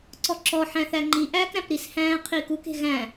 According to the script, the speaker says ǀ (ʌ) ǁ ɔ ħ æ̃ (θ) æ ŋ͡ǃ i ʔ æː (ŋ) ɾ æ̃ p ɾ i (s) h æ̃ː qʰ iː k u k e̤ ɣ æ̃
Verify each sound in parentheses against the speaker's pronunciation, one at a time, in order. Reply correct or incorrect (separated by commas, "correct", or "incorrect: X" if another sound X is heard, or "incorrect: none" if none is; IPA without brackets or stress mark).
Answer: incorrect: ɔ, correct, incorrect: k, correct